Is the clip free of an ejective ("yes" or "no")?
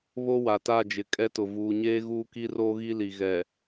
no